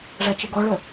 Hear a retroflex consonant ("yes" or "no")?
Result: yes